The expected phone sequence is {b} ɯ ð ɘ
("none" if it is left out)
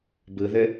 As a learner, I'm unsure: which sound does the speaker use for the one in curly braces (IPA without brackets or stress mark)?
b